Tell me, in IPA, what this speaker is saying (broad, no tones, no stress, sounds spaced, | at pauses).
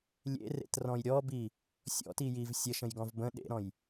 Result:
lʲ ḛ r ḛ t r ɔ̃ j ɾʲ ɔ b i | sʲ ɔ̰ t i j i v sʲ ə ʃ ə̃ j ɡ ɔ̃ v b ə̃ ɗ ḛ ɾ ɔ̃ j